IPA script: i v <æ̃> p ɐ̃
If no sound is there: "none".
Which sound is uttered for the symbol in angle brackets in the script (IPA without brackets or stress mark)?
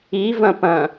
ɐ̃